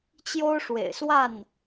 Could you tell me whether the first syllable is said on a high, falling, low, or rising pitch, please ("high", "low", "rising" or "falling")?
high